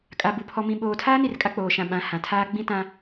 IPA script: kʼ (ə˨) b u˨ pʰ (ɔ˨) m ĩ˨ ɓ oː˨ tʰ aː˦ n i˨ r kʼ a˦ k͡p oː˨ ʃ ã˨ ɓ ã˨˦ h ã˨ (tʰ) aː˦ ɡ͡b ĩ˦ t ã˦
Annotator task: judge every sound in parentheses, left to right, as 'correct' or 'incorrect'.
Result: incorrect: a˨, correct, correct

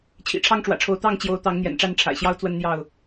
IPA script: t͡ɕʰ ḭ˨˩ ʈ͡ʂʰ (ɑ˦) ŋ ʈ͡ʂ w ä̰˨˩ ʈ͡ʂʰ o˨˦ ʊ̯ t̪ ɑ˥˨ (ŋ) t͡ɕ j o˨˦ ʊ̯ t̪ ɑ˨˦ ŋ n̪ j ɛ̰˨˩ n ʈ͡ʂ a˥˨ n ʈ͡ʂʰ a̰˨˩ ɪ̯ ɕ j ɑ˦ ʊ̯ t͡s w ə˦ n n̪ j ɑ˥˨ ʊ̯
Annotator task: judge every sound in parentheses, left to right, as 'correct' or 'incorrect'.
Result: correct, correct

